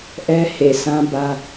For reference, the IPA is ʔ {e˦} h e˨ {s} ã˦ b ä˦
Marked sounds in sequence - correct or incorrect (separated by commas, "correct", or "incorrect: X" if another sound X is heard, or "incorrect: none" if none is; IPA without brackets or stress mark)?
incorrect: ɛ˦, correct